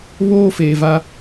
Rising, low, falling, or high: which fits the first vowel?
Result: high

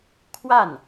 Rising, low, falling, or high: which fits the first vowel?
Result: falling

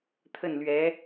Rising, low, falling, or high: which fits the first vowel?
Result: falling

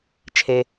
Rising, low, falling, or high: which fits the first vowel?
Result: low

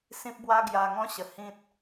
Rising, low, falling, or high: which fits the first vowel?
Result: high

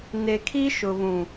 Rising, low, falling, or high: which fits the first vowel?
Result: low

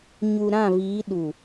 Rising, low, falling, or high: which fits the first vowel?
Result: low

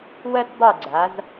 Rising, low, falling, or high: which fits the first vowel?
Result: high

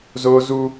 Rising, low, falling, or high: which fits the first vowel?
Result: high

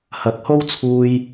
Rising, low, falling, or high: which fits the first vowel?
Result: rising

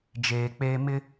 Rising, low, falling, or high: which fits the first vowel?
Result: low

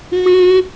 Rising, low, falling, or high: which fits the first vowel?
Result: high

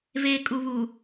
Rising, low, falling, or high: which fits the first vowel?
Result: low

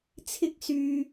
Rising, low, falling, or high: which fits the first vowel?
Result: high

